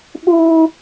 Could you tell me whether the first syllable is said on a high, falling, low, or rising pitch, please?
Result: high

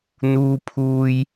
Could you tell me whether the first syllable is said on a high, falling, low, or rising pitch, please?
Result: high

